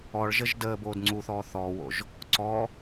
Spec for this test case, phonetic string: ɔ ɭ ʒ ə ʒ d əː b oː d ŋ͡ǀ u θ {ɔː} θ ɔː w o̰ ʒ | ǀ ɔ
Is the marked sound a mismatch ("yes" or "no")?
no